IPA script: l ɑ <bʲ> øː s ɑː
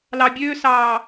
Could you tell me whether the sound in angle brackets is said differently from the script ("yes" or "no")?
no